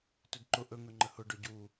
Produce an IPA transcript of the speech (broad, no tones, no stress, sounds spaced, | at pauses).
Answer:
t ɵ d ǃ ʊ ʔ ɵ ŋ ɵ ŋ͡ǃ ə h ʊ ɖ ɵ ɟ u